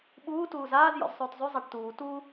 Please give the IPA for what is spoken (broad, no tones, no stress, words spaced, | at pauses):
ɓuː tuːzaːz jɔ̰zsˤʉːtzˤʉ zˤaʈtuː tu